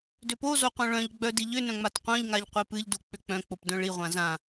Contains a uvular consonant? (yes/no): yes